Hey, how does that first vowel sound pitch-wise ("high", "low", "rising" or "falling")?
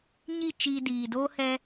falling